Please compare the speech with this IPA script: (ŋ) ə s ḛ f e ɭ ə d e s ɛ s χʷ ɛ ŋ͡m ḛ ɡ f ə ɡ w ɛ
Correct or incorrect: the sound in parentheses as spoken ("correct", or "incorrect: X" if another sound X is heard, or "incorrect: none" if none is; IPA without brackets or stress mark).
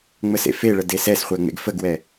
incorrect: ŋ͡m